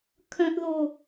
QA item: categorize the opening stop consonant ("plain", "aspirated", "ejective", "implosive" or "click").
aspirated